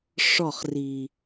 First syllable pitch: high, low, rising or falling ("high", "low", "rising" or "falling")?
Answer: falling